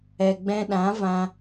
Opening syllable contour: low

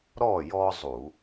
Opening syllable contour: falling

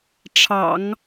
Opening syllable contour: low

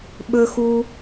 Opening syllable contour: low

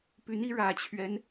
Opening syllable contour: rising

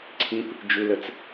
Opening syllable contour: high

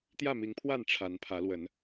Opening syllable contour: falling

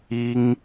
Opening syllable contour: high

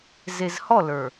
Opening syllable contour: low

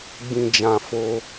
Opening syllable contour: low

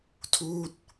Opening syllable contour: falling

